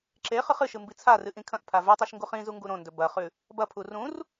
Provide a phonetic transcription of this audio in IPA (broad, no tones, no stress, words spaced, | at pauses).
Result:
ǁe χɨχɨʃɨ mbit͡sʰarɨ ʔĩkʰɐ̃ʔpʰa vʉtˤiʃ ŋɡuχĩzu ŋɡuɾõndɵ bɐχʉ | bɐpʰu rũr